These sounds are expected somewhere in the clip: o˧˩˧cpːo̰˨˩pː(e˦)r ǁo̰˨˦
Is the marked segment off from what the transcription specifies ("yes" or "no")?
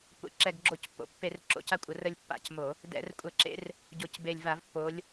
yes